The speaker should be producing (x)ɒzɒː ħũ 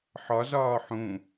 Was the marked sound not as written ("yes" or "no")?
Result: yes